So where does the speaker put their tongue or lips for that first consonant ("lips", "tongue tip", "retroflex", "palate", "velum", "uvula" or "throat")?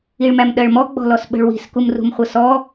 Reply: retroflex